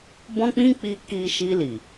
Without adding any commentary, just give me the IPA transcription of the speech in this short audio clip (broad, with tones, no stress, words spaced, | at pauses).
bɔ̃˦k͡pĩ˦k͡pi˧ ki˧ʃi˧li˨